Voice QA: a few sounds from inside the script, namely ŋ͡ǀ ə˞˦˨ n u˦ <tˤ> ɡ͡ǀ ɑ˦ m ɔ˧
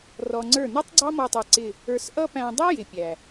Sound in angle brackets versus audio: correct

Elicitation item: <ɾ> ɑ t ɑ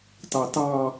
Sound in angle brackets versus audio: incorrect: t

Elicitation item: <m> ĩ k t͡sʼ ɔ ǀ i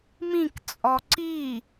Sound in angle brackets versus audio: correct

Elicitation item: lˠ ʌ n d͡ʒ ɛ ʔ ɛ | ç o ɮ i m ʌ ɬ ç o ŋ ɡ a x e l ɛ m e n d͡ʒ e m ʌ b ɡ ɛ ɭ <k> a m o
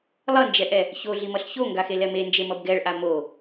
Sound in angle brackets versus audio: incorrect: ʔ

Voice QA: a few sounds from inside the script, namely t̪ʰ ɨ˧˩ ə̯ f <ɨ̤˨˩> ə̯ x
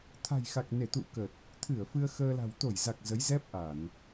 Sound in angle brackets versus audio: incorrect: ɨ˧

